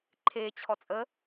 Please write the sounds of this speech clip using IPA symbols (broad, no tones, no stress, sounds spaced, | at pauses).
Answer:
ǃʰ e t͡ɕʰ ɔ t͡sʼ ə